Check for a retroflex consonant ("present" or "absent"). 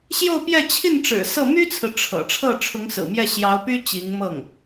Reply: present